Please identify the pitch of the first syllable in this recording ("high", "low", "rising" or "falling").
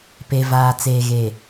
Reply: low